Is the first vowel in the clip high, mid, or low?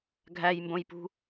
low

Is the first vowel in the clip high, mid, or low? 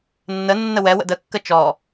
mid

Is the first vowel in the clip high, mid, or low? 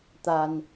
low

